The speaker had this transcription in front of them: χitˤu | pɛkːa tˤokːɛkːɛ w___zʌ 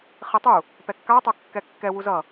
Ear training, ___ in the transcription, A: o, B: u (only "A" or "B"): B